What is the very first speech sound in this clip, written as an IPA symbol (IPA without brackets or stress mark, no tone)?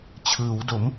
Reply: t͡ɕʰ